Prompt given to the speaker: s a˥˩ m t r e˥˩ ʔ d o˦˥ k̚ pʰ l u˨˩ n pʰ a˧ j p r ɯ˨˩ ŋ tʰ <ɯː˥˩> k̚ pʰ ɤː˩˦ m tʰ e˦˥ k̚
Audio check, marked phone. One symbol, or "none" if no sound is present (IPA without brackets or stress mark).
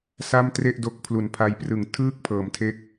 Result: ɯː˥˩